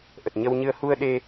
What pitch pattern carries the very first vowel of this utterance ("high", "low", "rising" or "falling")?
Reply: low